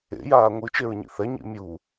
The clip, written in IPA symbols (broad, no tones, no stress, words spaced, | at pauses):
ḛjaː ŋʷɯt͡ʃeɹɲḭ θɛɲḭ mʲu